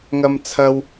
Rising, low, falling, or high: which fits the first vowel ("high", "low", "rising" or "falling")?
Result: high